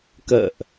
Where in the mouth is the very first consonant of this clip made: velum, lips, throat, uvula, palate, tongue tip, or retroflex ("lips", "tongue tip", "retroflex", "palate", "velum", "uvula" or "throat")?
velum